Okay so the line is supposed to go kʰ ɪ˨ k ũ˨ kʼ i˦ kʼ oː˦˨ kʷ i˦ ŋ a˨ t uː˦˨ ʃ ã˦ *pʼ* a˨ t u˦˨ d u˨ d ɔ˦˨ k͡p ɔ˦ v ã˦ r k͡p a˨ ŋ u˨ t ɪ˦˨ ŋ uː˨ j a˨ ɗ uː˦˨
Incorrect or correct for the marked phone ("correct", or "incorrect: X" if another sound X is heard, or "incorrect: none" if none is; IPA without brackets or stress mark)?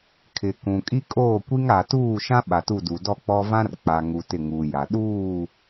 incorrect: ɓ